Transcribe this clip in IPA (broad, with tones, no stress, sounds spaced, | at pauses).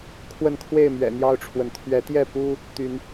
kʰ w ə˥˨ n kʰ w e˥˨ ɪ̯ m ɥ ɛ̰˨˩ n̪ j ɑ˥˨ ʊ̯ ʈ͡ʂʰ w ə˩ n t̪ʰ ɥ ɛ˨˦ t̪ j ɛ˥˨ p u˦ | t̪ y˨˦ n